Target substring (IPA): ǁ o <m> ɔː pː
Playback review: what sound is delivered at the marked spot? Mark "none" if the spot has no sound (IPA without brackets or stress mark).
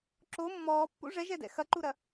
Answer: mː